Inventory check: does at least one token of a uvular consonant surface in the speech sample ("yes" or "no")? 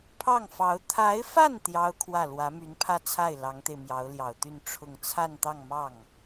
no